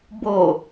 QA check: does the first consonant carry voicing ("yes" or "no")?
yes